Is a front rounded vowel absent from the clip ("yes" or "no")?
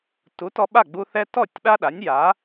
yes